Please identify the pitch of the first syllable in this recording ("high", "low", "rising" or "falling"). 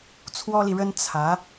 high